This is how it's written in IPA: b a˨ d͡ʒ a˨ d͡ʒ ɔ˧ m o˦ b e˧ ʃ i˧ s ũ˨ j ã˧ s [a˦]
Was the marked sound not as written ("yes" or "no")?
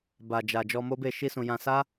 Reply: no